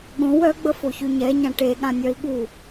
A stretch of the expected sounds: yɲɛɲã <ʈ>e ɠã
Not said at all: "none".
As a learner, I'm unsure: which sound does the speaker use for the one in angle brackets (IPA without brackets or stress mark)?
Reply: ʈ